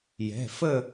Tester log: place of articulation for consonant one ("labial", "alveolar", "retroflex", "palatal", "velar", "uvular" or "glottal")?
palatal